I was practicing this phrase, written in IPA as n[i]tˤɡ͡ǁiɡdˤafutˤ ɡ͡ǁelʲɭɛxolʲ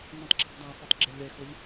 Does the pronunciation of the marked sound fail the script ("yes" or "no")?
yes